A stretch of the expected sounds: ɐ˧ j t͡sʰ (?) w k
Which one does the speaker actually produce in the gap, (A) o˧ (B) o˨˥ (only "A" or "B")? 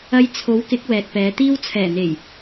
B